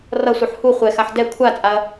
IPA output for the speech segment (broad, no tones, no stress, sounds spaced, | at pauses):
r ʌ sʷ ɯ ħ h u χʷ ɛ x a ħ d ɛ kʷʰ a t͡sʼ a ɐ̯